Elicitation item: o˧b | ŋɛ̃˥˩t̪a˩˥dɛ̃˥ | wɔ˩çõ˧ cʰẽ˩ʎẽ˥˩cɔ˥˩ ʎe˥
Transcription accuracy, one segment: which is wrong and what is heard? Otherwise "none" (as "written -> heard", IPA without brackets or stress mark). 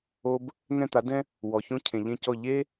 none